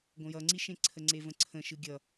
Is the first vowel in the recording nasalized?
yes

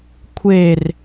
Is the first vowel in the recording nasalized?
no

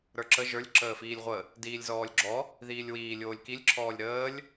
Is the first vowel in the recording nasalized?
no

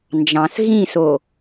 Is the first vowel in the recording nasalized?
yes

